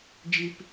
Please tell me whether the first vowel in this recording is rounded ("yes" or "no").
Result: no